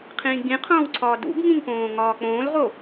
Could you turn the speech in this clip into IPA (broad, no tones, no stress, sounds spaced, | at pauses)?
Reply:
qʰ ĩː ɡ͡b ĩ qʰ õː w ǀʰ ɒː d ṵ b ŋ ĩ ŋ p õː ŋ ɒː k͡p õː l ʁ o